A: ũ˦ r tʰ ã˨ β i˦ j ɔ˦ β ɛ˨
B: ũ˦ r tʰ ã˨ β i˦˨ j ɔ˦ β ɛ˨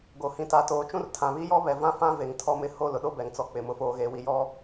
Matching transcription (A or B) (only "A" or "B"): A